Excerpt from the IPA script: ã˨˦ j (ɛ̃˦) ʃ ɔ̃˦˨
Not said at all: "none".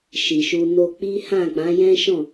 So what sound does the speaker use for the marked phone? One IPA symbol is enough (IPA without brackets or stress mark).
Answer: ɛ̃˦